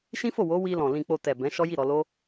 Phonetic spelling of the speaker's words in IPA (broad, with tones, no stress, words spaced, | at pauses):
ʃĩ˦fo˦˨wo˨˦ wi˧lɔ̃˨ lĩ˨k͡po˨ tɛ˨ bɛ̃˨˦ʃɔ˦ ji˦˨ɾɔ˧lo˦